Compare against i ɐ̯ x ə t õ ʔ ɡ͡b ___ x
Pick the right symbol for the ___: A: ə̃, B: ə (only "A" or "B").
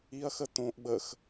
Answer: B